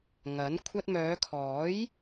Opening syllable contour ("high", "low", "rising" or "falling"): rising